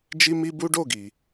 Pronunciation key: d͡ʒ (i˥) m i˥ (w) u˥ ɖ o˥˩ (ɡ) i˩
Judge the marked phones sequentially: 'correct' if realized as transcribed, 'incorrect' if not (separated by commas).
correct, incorrect, correct